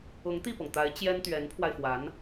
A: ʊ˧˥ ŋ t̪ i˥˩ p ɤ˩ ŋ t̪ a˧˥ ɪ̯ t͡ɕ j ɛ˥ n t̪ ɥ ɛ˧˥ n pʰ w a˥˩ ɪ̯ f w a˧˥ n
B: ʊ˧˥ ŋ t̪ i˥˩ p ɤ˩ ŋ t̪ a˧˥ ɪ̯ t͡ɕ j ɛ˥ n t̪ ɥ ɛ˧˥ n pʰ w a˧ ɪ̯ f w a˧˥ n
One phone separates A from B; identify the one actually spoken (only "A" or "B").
B